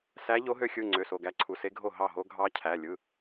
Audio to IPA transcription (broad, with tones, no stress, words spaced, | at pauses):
sæ˧˥ʎo˧˥ɦø˧˥xʲɯ˩˧˩ ŋ͡ǀø˩˧˩so˩˧˩ɡæ˧˥ǀʰu˩˧˩ se˧˥ɡʱo˥˩ ɦɑ˥˩ɦo˧˥ ɡʱɑ˧˥ cʰæ˩˧˩ lʲɯ˩˧˩